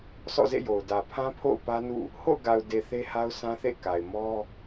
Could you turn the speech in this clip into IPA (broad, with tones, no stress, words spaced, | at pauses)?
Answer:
sɔ̰˦˨zḛ˦˨jo˨ʊ̯ dä˨pʰã˦pʰo̰˦˨ʊ̯ pä˦nṵ˦˨ | ho̰˦˨ʊ̯ɡa˨ʊ̯de˨ θe˦ha˦ʊ̯sʰã˦θḛ˦˨ ka˨ɪ̯ mɔ˦